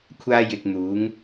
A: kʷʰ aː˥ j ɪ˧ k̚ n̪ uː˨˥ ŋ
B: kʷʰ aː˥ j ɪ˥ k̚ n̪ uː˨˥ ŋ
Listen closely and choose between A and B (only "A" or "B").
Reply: A